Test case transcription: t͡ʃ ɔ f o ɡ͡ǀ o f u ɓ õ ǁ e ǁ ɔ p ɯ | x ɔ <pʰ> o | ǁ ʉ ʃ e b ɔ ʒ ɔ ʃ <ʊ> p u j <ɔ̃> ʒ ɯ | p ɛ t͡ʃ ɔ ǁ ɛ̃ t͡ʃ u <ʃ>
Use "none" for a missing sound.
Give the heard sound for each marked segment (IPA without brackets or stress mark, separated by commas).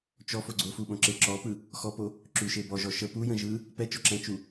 p, ə, ə̃, none